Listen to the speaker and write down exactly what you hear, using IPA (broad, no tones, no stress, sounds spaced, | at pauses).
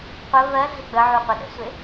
qʷ ə β ɜ ɮ ɪ ɡ͡b ə ʕ u qʷ ɪ ɗ ə̰ sʷ ɪ